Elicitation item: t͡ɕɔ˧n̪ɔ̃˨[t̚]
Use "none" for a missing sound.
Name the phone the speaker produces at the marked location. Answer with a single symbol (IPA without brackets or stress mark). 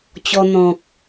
k̚